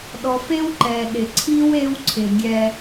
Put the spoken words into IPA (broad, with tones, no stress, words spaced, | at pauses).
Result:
ɗɔ˨fe˦wǃɛ˨ɗɪ˨ ǀʰi˦w e˦wǀʰɪ˨ɡʲɛ˦